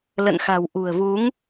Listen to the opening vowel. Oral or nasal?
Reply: oral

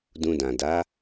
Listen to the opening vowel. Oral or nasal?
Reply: nasal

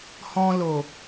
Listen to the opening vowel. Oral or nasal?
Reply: nasal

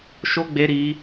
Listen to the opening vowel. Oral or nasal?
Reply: oral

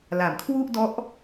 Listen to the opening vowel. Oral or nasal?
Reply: oral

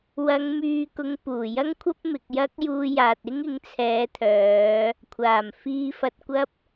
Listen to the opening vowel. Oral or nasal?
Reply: oral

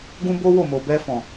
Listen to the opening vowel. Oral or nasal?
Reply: nasal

